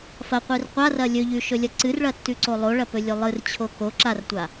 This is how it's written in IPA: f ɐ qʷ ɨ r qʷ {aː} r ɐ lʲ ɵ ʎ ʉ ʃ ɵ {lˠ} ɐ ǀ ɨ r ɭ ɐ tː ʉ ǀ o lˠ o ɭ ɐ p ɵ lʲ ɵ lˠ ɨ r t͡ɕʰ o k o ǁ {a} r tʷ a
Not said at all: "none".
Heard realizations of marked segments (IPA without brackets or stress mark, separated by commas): a, lʲ, a